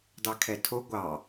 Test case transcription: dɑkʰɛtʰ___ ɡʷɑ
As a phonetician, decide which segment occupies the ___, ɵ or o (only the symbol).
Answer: o